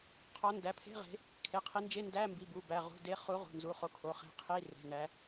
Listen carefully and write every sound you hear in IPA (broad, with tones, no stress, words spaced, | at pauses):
qʰɒ˨˦ndæ˩˧˩pʰe̤˧˥˧ʁe̤˨˦ | kʰe˩˧˩qʰi˨˦nd͡ʒe˧˥˧ndæ˧˥˧ mbi˩˧˩bu˩˧˩bæ˩˧˩ ʁṳ˩˧˩de˨˦χu˨˦ ʁṳ˩˧˩nzu˩˧˩χo˨˦kʰo˩˧˩ χe̤˨˦ qʰi˧˥˧re̤˩˧˩næ˨˦